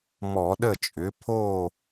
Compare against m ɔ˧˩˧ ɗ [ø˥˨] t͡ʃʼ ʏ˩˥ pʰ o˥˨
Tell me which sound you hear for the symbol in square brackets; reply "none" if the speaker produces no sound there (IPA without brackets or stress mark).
ə˥˨